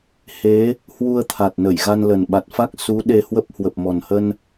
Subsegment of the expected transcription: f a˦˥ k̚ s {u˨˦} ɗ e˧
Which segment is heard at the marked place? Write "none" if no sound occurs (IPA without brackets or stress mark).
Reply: u˨˦